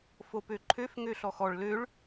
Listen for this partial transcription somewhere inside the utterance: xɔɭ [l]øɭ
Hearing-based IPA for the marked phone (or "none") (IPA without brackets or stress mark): l